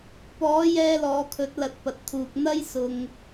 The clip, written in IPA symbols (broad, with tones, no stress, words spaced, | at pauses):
pɔː˨˥jɛː˧lɔː˨ kʰɵ˨˥t̚lɐ˨˥t̚pɐ˨t̚t̪ʰuː˨k̚ n̪ɐ˥j sʊ˧ŋ